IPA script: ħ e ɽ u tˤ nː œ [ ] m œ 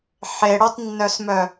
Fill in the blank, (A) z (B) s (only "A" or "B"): B